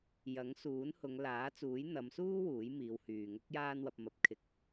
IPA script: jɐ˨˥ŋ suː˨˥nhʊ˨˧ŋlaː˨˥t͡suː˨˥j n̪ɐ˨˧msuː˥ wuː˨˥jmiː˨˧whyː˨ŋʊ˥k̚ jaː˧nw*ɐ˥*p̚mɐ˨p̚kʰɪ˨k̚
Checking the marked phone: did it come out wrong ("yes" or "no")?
yes